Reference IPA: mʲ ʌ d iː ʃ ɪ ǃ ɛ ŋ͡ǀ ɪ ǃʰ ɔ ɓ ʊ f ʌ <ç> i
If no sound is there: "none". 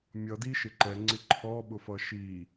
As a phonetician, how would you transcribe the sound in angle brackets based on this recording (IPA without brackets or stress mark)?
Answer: ʃ